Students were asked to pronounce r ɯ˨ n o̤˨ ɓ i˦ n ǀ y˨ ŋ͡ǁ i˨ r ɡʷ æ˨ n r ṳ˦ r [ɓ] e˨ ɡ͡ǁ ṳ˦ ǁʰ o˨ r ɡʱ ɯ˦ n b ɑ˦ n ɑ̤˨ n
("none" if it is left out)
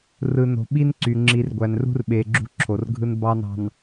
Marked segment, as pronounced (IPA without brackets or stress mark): ɓ